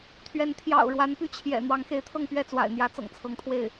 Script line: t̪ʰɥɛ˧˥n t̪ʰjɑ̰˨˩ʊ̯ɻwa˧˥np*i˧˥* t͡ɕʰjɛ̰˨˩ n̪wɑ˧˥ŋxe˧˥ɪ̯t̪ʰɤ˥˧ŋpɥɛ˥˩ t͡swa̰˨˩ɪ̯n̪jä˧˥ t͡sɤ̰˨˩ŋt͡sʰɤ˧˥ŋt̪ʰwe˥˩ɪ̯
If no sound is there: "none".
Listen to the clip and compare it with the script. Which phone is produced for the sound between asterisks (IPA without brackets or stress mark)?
y˧˥